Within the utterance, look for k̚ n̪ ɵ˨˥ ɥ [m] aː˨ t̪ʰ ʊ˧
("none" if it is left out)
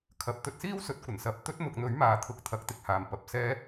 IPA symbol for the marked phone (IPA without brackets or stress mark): m